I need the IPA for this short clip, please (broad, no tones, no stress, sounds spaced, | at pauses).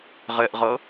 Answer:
ʁ ɛ ʔ ʁ ʌː